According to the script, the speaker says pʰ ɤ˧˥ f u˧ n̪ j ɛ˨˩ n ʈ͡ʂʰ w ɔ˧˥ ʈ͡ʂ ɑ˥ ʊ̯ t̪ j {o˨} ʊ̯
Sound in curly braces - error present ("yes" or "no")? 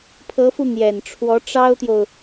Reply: no